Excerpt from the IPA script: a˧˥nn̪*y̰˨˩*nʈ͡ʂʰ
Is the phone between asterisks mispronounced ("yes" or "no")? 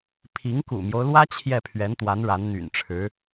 no